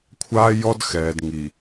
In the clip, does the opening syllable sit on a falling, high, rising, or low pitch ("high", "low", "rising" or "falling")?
high